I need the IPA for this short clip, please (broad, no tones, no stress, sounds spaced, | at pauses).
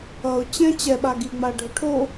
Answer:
ʌ ʊ̯ t͡ɕ ɛ̃ t͡ɕ ɛ ɓ a ɡ i ŋ͡m a ɖʱ o ʈʰ o